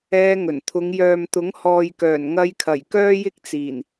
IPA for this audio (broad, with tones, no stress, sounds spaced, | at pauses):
ɛː˧ ŋ ɵ˨˩ n t̪ʰ ʊ˨˧ ŋ j œː˨ m t̪ ʊ˨˥ ŋ h ɔː˨ j k œː˨˩ n ŋ ɐ˧ j kʰ ɐ˨˩ j k œː˥ j ɪ˥ k̚ t͡s iː˨˩ n